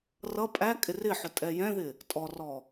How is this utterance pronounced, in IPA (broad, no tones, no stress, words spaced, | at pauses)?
rʌ pʼækʼɪ rɪħʊ tʼɛjɛ̃ðɪ | tʼɔrɔ